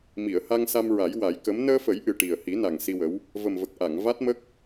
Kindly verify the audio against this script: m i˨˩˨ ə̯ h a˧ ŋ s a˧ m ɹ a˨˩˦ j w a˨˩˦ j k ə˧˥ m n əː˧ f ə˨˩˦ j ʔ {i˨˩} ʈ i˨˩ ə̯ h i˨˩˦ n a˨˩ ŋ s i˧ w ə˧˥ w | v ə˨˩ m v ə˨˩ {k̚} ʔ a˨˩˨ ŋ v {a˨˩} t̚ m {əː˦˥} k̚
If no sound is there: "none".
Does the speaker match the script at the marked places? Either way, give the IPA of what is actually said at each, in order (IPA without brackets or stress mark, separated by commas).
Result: ɨ˨˩, k̚, a˦˥, ə˦˥